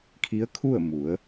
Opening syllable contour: rising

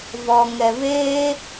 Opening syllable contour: low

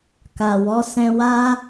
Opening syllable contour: low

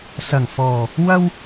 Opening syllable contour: low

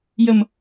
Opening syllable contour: low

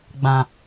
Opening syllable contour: low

